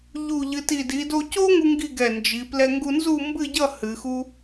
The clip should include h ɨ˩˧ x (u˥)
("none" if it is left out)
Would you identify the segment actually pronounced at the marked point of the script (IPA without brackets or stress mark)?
u˥